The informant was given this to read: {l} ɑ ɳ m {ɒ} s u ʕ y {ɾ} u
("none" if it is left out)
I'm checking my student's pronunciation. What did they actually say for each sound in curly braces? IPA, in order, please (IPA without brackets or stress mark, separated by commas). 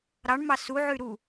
ɾ, ɑ, ɾ